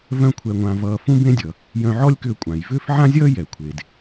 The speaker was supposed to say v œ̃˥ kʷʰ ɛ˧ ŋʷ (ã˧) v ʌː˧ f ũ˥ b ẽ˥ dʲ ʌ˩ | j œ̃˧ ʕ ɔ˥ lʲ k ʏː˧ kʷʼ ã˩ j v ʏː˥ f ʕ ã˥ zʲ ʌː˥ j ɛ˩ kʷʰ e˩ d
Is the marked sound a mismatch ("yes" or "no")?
no